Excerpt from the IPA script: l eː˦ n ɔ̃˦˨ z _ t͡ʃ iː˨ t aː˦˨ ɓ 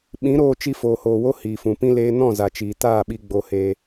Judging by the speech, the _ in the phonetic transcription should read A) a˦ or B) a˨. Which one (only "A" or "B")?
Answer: B